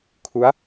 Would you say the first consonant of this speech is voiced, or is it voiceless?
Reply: voiceless